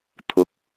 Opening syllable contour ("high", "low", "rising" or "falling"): rising